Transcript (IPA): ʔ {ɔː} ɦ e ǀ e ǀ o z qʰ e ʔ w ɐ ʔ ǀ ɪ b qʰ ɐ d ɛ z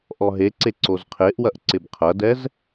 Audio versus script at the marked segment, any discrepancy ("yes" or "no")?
yes